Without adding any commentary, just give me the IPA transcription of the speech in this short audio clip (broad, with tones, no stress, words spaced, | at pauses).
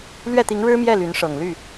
lɥɛ˥˩t̪i˧˥ŋɻɻ̩˥mjɛ˥˩ ly˧˥nʂɤ˨˩ŋ ly˥˩